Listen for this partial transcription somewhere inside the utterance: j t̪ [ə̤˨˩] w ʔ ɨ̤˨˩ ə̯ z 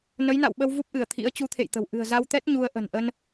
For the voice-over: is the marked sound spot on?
yes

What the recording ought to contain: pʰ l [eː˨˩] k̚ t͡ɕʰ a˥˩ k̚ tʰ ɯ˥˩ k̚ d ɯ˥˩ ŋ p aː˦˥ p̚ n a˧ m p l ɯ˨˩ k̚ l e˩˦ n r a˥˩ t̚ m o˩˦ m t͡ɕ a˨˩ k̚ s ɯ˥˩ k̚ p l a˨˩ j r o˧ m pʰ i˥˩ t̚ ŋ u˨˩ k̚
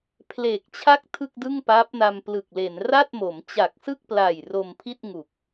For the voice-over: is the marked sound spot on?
yes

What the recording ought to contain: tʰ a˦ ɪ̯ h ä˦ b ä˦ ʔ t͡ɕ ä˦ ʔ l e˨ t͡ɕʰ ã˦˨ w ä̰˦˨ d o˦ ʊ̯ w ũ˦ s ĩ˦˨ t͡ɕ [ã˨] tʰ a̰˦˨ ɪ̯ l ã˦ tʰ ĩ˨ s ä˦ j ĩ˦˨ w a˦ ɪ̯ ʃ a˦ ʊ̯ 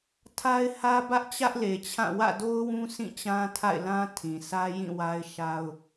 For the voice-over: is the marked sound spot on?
no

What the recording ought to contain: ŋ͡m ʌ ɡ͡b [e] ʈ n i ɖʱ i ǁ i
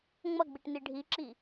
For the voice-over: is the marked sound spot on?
no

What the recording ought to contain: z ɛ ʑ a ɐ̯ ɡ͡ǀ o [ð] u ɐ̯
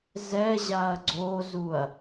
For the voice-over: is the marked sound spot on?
no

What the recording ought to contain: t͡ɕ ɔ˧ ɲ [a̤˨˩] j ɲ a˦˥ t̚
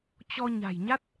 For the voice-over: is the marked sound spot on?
yes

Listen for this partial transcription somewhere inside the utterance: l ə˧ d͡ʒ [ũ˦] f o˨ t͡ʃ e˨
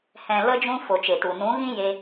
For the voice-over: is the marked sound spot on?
no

